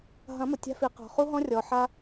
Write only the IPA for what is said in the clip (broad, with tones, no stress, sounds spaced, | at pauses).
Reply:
ɦ ɐ̃˨˦ m ʊ˨ tʲ a̤˧ f i˨ q ɔ̤˨ χ u˧ ɦ ɔ̃˧ rʲ ɔ˨ ħ a˧